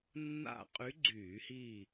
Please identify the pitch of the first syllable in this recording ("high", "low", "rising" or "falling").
falling